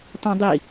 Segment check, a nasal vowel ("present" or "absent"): present